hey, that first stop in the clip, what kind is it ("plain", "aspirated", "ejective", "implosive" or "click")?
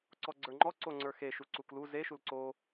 click